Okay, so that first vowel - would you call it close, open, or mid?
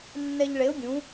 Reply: mid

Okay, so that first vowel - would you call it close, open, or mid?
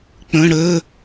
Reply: mid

